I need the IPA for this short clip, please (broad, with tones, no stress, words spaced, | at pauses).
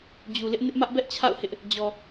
d͡ʑu˨lɪ˦ʔ nɪ˦ʔmä˦ʔbɛ˦ʔt͡ɕʰa̰˦˨ʊ̯ hɪ˦ʔ | d͡ʑɔ˨